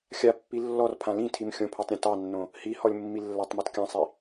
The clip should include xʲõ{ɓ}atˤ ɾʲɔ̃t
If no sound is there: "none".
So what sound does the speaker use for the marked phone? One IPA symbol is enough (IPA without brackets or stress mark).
pʰ